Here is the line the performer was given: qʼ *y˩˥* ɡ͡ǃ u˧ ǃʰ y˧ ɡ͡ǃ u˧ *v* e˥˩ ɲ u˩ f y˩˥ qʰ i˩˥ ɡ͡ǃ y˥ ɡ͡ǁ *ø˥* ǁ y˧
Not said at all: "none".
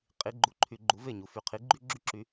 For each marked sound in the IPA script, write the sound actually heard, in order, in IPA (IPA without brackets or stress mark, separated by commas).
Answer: i˩˥, v, y˥